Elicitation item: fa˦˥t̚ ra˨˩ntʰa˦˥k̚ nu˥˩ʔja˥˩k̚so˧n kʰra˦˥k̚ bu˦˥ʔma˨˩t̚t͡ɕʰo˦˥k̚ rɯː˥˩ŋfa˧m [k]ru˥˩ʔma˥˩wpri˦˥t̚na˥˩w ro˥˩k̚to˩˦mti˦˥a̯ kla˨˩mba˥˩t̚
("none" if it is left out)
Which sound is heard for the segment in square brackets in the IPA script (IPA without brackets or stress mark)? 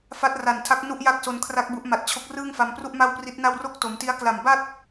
p